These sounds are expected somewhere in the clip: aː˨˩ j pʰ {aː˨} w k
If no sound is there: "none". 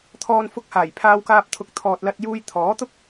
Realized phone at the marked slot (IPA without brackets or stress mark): aː˧